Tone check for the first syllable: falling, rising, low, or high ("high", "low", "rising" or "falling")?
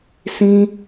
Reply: high